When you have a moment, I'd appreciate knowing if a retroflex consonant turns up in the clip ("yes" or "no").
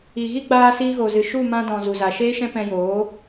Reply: no